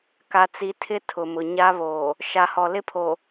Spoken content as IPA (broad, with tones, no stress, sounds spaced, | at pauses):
k a˨ t͡s i˨ tʰ ɪ˦ tʰ ʊ˨ m ʊ˨ ɲ a˦ β oː˨ | ʃ a˨ h ɔ˨ l ɪ˦ pʰ o˨